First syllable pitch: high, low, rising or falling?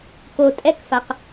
low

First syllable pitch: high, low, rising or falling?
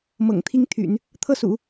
low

